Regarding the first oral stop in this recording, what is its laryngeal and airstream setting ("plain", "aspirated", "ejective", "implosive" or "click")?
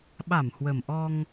implosive